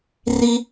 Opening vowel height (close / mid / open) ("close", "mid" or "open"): close